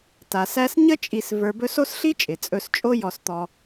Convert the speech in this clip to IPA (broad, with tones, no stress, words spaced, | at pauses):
ta˩sæ˦s ɲə˥t͡ʃʼi˨s və˞˨bɵ˦so˥s ɬi˥t͡ʃʼɪ˩ t͡sʼɵ˨st͡ʃʼo˦ jɔ˨st̪ɔ˨